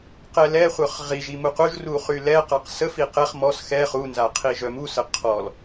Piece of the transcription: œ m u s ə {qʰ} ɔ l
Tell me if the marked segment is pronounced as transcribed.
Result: yes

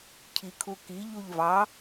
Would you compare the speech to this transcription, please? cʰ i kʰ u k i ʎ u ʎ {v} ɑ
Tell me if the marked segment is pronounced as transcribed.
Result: yes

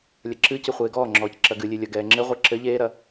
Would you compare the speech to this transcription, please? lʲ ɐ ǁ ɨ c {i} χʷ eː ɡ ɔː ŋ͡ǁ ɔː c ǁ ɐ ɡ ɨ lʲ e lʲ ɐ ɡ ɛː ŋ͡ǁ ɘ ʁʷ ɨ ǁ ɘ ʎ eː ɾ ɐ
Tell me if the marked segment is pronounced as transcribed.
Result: no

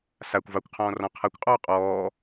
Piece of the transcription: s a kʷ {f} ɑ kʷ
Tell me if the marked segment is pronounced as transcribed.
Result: no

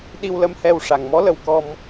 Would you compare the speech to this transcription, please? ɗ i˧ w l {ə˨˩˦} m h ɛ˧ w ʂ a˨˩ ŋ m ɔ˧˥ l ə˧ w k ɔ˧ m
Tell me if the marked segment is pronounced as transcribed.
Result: no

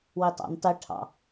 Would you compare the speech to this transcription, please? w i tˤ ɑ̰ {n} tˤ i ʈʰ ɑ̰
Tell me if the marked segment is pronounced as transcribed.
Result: yes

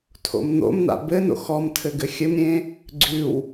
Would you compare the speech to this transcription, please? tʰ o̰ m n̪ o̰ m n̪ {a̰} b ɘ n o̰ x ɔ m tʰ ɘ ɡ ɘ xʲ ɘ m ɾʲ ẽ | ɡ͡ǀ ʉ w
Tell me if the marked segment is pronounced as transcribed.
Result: yes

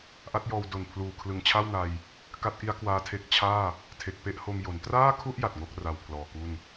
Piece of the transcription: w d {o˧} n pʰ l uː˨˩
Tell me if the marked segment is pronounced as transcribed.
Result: no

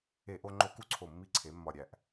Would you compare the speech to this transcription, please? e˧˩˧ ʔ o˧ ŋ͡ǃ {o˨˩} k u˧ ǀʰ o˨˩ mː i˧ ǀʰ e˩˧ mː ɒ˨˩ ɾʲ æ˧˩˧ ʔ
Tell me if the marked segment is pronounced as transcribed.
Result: no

